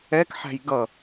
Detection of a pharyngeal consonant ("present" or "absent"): present